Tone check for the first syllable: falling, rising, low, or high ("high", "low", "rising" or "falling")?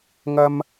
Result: high